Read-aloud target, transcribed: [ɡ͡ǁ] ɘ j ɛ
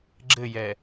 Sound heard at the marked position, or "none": ɡ͡ǁ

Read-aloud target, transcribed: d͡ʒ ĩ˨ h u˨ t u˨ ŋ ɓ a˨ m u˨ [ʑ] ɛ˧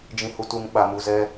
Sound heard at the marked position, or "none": z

